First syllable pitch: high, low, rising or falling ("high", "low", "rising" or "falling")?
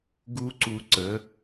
high